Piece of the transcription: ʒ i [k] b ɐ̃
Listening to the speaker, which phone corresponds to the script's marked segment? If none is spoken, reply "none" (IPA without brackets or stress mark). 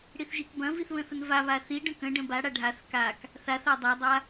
k